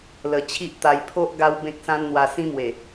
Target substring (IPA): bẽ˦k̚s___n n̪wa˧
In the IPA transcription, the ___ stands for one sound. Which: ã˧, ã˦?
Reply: ã˦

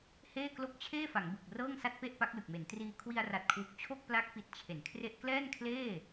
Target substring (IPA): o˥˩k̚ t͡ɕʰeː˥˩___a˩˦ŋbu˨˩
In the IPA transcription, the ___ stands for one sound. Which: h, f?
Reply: f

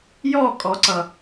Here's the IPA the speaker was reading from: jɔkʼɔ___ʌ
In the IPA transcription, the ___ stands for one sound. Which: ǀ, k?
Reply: ǀ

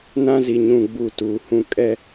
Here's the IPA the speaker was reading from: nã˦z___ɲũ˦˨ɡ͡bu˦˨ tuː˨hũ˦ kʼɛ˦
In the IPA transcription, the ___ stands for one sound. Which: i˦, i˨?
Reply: i˨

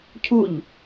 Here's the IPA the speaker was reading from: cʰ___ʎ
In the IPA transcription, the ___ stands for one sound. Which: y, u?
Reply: u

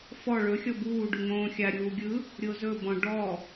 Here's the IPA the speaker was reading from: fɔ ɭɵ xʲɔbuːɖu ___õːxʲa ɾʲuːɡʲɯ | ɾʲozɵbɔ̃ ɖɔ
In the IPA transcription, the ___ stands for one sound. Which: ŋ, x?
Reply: ŋ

